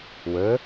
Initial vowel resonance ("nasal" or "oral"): oral